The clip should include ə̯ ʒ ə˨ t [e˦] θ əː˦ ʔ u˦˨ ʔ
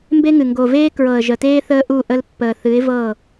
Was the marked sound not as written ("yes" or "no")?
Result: yes